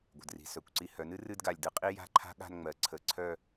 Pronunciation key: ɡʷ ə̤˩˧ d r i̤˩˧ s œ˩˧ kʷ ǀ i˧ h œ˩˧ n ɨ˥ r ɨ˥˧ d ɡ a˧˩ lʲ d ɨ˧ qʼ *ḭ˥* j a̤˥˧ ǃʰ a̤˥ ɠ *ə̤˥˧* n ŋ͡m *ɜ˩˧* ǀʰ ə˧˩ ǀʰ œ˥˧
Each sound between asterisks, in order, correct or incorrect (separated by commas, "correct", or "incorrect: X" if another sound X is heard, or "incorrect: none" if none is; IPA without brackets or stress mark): incorrect: i˥, incorrect: a̤˥˧, correct